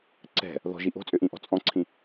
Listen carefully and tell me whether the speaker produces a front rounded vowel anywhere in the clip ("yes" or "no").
yes